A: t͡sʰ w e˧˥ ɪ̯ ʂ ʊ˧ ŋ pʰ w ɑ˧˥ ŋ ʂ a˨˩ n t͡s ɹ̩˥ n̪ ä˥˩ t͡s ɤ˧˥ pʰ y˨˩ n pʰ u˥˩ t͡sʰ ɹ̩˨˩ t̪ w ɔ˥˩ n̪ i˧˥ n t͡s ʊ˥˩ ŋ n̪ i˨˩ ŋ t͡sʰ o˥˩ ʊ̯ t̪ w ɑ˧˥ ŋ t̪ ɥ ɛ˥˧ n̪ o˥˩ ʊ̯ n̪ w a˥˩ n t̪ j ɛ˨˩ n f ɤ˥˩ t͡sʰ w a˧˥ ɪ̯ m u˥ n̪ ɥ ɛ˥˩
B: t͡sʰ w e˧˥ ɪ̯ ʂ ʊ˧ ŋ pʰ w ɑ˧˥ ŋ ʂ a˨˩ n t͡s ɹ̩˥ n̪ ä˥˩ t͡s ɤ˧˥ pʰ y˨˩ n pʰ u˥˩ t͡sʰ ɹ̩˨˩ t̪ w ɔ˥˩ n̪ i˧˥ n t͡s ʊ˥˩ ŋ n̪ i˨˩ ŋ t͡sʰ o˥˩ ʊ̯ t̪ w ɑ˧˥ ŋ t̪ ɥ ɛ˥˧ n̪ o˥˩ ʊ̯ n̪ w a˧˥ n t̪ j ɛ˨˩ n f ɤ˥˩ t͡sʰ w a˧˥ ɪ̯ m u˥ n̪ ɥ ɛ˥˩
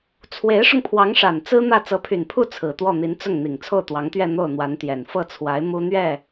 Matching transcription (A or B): B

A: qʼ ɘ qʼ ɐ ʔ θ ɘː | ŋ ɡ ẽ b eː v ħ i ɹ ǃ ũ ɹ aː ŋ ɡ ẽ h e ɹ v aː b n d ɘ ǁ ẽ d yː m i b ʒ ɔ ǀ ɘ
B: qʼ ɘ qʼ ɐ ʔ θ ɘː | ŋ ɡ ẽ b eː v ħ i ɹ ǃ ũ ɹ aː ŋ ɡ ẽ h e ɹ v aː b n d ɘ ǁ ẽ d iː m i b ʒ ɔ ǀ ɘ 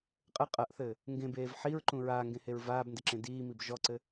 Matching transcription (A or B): B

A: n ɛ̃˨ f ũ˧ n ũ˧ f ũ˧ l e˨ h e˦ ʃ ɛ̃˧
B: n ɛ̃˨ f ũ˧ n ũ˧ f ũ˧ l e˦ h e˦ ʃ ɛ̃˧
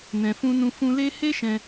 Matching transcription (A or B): B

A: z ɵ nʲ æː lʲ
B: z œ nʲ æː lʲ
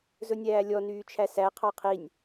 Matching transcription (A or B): A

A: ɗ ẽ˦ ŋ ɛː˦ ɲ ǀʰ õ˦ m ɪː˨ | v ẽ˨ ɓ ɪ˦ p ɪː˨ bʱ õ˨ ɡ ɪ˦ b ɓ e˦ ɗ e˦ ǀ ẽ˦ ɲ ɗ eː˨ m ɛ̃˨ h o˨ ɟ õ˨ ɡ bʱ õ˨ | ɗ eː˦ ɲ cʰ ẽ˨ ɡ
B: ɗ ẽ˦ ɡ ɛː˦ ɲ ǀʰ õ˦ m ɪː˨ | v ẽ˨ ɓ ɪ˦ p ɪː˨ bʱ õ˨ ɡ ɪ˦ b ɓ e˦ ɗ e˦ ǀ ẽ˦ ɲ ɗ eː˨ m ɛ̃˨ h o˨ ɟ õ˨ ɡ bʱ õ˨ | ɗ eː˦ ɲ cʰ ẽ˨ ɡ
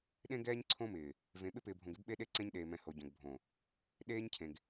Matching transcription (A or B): B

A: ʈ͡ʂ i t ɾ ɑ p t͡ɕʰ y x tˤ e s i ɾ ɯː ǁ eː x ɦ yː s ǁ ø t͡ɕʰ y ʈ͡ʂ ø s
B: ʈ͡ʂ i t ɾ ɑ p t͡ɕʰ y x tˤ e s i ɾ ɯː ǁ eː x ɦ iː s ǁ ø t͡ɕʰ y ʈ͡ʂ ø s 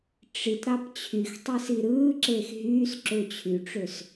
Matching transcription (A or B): A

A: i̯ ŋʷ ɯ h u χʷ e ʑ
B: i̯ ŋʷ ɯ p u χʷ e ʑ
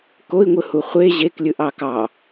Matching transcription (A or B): A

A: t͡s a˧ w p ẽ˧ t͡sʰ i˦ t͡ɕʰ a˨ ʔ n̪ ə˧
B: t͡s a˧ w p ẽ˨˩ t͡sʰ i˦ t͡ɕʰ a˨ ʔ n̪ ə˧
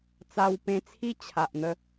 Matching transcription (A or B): A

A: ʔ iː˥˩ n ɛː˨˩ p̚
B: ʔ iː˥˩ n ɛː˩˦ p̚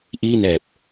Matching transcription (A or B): A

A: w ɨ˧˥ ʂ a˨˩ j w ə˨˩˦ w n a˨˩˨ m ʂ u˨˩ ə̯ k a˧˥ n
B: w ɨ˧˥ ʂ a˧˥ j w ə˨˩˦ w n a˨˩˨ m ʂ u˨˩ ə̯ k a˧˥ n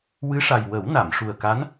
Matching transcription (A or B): A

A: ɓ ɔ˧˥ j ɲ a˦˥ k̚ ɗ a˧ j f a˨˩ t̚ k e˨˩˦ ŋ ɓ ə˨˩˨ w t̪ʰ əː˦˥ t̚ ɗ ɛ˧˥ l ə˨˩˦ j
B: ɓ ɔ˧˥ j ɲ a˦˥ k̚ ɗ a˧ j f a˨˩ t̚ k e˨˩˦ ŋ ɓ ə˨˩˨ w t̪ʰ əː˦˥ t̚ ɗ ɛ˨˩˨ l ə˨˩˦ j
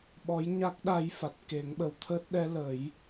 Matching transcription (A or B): A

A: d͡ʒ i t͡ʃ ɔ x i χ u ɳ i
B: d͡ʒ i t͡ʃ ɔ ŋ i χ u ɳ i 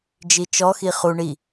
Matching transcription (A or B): A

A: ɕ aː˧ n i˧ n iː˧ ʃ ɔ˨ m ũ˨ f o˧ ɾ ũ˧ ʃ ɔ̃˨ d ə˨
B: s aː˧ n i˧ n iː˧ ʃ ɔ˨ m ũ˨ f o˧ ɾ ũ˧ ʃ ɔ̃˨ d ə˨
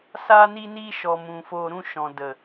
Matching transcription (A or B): B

